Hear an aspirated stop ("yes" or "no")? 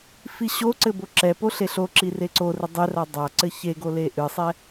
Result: no